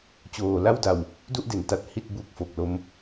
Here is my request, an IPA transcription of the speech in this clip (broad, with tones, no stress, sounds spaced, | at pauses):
t͡ɕ oː˨˩ l a˥˩ w d a˨˩ w | d u˥˩ ʔ d e˩˦ n t a˨˩ t̚ h i˥˩ t̚ b u˦˥ k̚ f o˨˩ k̚ l o˦˥ m